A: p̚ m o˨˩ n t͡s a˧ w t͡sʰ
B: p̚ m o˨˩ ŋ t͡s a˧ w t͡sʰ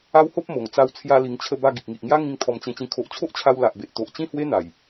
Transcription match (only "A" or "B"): B